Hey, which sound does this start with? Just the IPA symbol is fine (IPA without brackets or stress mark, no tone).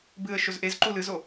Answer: b